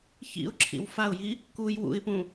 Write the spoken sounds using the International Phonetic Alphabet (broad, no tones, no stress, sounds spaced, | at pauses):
ç ḭ ʊ̯ ǁʰ ḭ w f a ʊ̯ j i | k u j w ṵ ɪ̯ p ũ